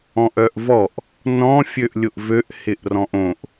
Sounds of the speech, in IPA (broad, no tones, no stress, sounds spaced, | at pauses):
ɔ̃ ʔ œ ʔ v ɔ ʔ | n ɔ̃ fʲ ø ʔ lʲ ʊ ʔ v ø ʔ h ɪ ʔ r ɔ̃ ʔ õ ʔ